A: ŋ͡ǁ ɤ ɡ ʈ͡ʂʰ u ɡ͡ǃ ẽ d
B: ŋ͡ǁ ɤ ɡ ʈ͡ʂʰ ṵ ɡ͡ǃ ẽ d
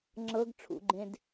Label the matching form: B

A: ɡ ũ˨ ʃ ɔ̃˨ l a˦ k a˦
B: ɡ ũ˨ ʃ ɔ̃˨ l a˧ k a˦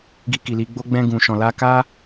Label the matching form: B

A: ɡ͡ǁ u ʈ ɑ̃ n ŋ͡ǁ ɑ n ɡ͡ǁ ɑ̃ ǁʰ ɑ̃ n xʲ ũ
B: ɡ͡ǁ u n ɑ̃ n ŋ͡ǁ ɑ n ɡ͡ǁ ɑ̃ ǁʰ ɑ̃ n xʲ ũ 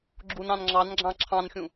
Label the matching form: B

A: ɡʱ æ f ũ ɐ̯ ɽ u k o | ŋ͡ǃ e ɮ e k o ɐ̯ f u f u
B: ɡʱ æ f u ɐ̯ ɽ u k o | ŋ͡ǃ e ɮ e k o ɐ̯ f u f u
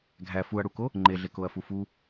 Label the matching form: B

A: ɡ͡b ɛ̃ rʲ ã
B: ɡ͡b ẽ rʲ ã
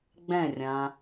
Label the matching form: A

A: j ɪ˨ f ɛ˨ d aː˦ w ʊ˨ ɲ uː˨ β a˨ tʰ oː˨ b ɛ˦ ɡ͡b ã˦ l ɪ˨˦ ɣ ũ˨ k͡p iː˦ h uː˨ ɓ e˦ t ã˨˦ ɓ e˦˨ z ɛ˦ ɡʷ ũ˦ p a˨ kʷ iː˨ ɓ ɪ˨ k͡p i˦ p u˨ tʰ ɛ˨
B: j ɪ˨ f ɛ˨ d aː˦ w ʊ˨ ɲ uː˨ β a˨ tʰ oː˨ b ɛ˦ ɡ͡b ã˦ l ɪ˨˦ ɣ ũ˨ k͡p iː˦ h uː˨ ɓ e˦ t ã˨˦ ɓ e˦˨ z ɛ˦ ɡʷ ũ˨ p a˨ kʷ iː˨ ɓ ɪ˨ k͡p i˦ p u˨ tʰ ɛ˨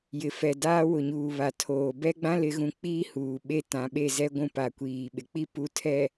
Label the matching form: A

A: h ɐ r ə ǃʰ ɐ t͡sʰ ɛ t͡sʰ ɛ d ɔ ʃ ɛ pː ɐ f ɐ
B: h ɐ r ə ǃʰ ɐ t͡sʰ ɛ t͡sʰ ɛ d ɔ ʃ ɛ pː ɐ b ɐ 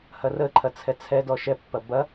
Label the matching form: B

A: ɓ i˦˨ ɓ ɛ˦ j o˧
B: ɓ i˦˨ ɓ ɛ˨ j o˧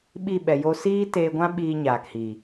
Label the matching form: B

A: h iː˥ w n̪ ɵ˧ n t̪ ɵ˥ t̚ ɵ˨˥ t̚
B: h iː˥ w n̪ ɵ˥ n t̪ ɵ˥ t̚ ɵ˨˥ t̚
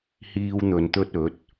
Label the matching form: A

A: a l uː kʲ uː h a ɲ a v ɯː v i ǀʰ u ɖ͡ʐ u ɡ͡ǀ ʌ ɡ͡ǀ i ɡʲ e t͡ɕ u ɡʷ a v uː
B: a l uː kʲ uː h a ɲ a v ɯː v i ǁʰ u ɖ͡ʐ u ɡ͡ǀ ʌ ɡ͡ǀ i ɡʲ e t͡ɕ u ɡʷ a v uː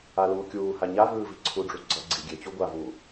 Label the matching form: A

